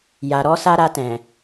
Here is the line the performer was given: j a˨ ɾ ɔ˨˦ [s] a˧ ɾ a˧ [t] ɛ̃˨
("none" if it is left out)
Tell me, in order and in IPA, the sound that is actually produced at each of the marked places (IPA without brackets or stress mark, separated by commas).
s, t